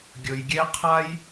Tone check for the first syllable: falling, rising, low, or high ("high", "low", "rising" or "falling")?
low